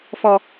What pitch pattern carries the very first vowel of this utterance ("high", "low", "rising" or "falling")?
low